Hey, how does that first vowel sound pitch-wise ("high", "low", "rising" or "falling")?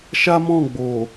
high